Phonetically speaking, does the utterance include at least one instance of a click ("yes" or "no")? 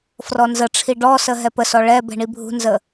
no